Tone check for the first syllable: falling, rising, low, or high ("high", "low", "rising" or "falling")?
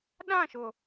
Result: falling